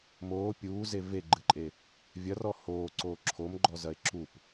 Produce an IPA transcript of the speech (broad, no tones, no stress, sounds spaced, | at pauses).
m oː pʲ uː z e v e ɡ͡ǃ ɨ ǃʼ e | vʲ ɐ r ɔ h oː ǀ oː ǁʰ o m ɡ͡ǃ ɔ z ɐ e̯ ǁ u p